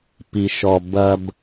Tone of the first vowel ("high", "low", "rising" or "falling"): low